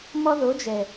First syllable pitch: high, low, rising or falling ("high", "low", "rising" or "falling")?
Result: high